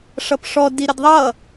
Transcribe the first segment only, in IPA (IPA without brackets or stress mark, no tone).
ʂ